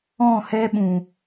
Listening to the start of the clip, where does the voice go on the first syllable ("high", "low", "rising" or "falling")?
falling